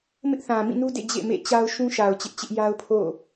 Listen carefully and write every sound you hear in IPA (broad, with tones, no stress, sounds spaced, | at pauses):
m ɪ˦ ʔ θ ã˨ m ĩ˦˨ n u˦ d ḛ˦˨ d͡ʑ ḛ˦˨ m ḛ˦˨ t͡ɕ a˦ ʊ̯ ʃ ũ˦ ʃ a˨ ʊ̯ t͡ɕ ɪ˦ ʔ t͡ɕ ɪ˦ ʔ j a˦ ʊ̯ pʰ o̰˦˨